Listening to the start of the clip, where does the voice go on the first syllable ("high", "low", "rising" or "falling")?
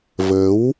rising